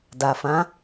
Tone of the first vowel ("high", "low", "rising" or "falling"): low